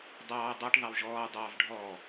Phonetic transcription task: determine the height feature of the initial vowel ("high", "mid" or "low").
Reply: low